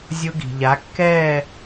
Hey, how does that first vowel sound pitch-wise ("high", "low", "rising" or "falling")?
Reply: high